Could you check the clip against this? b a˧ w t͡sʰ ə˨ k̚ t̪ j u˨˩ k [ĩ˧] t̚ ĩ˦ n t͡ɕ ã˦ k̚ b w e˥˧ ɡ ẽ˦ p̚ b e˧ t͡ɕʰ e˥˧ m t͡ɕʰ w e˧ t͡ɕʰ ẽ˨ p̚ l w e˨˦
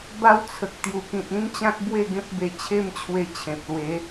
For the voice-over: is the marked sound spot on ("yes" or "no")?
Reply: no